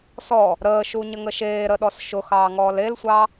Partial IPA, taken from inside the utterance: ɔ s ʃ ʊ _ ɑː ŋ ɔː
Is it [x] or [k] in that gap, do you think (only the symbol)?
x